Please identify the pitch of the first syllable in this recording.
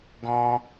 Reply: high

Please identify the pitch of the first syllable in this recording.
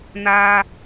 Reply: high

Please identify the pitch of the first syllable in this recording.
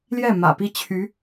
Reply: falling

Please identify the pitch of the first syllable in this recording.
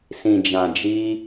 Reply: low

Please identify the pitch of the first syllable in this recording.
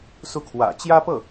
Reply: falling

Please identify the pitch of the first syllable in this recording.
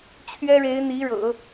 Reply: high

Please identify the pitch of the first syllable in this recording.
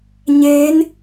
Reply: rising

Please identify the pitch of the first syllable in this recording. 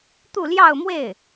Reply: falling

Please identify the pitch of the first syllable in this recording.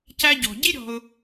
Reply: high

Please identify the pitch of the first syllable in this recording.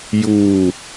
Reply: falling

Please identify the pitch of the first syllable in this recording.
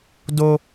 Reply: high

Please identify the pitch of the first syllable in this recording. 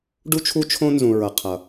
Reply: high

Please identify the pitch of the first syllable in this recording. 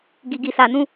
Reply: low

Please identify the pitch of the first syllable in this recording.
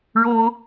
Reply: high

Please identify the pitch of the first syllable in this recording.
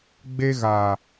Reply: high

